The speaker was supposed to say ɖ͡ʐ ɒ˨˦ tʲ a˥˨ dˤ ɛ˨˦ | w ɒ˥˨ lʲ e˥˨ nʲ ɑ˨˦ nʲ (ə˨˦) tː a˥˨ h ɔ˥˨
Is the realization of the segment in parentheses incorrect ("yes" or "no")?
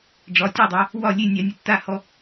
no